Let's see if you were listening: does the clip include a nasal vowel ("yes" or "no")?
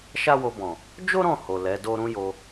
yes